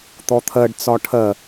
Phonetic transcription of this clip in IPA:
t̪ɔt̪ʰɜɖ t͡sɒʈʰɜ

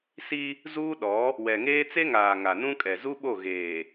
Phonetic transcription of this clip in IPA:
si˦ | zuː˦ɗɔ˨˦ | wɛ˨ŋeː˦ t͡se˦ŋaː˨ ŋa˨nũ˦kʼɛ˨ zu˦ɓo˦˨ ɣeː˨

